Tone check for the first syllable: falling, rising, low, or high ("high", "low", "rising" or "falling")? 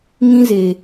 high